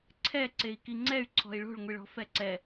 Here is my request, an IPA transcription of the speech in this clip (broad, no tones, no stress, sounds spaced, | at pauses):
ǀʰ ɛ ǀ e i̯ k i ŋ͡ǀ ɛ y̯ ǀʰ ɔ̤ i̯ ɭ o̤ ɭ ŋʷ i ɭ ɔ̤ f ɛ ǀ ɛ